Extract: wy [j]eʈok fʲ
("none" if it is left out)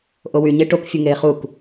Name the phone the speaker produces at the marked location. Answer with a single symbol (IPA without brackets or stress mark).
ɲ